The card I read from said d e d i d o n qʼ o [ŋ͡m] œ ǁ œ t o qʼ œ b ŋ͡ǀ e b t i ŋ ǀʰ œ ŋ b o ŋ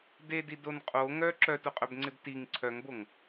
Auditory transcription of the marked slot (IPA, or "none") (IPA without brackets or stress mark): ŋ